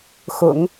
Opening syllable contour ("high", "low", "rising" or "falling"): low